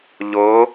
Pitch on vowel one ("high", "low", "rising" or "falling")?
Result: rising